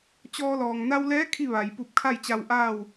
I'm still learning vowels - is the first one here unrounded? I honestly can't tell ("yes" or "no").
no